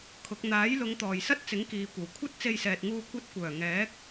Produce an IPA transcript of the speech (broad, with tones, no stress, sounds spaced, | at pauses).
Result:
kʰ ʊ˨˥ k̚ n̪ aː˨˥ j l ʊ˨˧ ŋ t̪ ɔː˨ j s ɐ˥ t̚ t͡s ɪ˨˥ ŋ k iː˨ kʷ ɐ˨˩ w kʷʰ ɐ˥ t̚ t͡s e˧ j s ɛː˨ t̚ ŋ uː˧ kʷ ɐ˧ t̚ kʷ œː˨˩ ŋ ɛː˨˥ k̚